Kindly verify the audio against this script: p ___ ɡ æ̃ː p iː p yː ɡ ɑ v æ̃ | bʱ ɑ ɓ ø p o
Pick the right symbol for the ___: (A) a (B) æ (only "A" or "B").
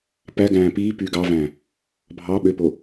B